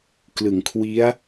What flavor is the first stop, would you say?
plain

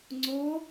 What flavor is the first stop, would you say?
click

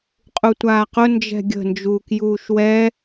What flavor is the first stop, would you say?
ejective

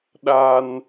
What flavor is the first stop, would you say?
implosive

